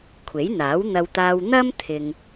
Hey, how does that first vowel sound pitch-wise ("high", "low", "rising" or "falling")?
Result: rising